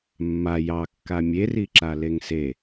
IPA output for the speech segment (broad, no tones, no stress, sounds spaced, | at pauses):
mː a j ɑ kː a mʲ e r i ǁ a l e ŋ s e